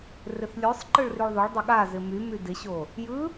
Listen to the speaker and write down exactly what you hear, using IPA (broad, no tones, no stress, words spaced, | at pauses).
rɪθlʲosˤ ǃɯɭryɭðˤoɭ dˤɪɠazɪ my mydɪɕo | jɯ